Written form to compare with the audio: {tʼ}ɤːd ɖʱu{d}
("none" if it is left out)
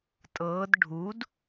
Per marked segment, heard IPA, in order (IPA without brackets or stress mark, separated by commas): tʼ, d